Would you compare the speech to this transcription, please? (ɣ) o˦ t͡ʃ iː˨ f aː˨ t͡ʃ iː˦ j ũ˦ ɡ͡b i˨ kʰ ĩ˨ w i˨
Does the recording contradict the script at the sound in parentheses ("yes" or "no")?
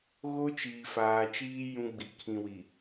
no